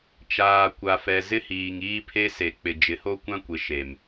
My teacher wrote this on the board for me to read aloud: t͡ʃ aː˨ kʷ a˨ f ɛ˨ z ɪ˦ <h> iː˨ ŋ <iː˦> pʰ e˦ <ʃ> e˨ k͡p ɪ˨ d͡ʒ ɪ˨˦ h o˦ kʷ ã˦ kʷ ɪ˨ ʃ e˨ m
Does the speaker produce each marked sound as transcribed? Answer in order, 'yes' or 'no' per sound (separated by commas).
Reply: yes, yes, no